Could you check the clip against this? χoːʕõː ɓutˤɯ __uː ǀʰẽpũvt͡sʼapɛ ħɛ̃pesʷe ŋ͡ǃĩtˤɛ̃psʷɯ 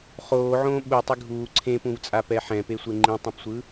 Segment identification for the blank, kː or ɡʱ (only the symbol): ɡʱ